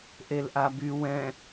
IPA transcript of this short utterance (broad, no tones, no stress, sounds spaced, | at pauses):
ʔ e l ʔ a b y w ɛ̃